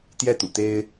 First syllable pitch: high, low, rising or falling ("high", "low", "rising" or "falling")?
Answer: high